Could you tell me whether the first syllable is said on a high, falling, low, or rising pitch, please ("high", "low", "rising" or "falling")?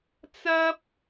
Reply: high